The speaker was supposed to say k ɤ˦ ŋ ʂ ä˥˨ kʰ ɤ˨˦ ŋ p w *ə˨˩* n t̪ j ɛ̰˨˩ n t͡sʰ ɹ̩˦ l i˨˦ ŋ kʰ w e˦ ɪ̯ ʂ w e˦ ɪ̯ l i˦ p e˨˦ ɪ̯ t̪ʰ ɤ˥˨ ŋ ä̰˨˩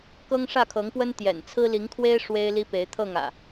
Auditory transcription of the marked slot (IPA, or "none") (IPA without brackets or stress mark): ə˦